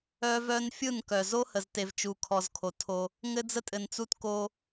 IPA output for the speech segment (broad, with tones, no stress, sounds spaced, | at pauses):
œ˦ v œ˦ n fʲ ɯ˦˨ n k œ˨ z o˦ h ə˨ z t e˨ v t͡ʃ u˨ kʰ ɔ˨ z kʰ o˨ tʰ o˦ | ŋ ɘ˦ d͡z ə˦ tʼ ɘ˨ n t͡s u˦ t k o˦